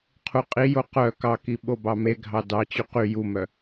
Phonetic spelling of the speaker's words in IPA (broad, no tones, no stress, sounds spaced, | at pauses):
qʰ u qʼ i j o q œ k ɑ k i ɓ o b ɑ m e ɡʱ ɑ d ɑ t͡ɕ y q y j u m œ